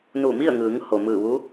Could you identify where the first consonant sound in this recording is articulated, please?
alveolar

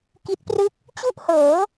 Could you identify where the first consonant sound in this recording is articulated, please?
velar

